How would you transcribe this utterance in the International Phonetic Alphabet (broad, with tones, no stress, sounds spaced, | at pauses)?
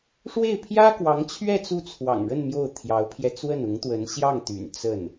ʂ w e˥˩ ɪ̯ pʰ j ä˥ k w ɑ˧˥ ŋ t͡ɕʰ ɥ ɛ˥˧ t͡s u˥˩ t͡sʰ w ɑ̰˨˩ ŋ ɻ ə˥˧ n m j o˥˩ ʊ̯ t̪ʰ j ɑ˧˥ ʊ̯ pʰ j ɛ˧ t͡s w ə˥˩ n ʊ˧˥ ŋ t̪ w ə˧˥ n ɕ j ɑ˥˩ ŋ t̪ y̰˨˩ n t͡s ə˥˩ n